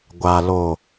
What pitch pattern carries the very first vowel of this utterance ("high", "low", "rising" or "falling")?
low